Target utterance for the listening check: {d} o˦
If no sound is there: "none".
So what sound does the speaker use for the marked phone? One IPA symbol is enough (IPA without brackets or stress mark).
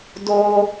d